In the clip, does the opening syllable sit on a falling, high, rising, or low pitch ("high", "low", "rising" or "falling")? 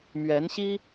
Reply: rising